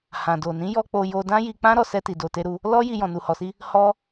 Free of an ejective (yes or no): yes